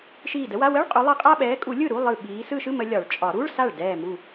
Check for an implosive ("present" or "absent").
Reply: present